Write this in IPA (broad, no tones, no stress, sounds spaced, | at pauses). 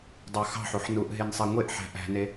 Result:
dˤ ɑ x ɑ̤ ħ u ħ n u ʔ ɦ e n sˤ e ŋʷ e ʔ ħ æ̤ ʔ æ̤ n e